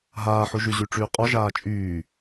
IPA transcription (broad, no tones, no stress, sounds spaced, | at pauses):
ɦ aː ħ u ʒ y ʑ y ʈ͡ʂ yː qʼ ɔ ʒ aː t͡ʃʼ yː